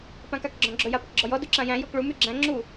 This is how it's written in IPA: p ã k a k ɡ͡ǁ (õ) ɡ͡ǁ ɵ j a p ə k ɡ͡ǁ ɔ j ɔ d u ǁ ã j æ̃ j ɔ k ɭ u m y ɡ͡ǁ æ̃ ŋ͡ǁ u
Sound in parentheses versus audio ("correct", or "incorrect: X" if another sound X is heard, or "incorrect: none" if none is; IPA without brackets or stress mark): incorrect: ɔ̃